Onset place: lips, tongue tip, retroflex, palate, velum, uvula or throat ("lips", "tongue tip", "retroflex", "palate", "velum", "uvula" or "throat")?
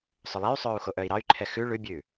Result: tongue tip